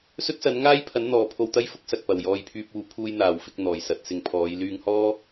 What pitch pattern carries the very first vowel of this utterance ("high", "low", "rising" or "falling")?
high